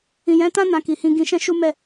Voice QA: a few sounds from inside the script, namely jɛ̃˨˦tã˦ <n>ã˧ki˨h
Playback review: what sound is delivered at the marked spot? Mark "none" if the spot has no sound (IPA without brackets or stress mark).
n